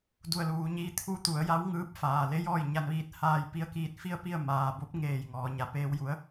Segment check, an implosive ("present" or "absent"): absent